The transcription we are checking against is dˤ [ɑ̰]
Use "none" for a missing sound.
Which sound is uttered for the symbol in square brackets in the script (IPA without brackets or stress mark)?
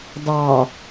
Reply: ɑ